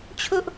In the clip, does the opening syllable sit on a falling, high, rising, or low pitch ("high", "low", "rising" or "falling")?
high